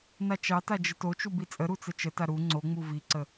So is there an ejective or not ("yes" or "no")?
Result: yes